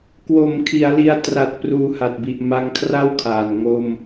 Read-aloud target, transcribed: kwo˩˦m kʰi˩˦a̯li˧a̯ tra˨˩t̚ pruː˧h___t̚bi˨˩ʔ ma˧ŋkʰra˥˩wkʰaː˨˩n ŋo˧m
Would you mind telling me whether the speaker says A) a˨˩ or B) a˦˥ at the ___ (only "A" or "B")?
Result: A